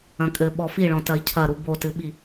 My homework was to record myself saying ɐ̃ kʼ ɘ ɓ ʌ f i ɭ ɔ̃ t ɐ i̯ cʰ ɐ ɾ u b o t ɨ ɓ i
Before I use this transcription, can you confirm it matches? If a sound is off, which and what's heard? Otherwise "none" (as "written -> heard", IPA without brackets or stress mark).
ʌ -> ɔ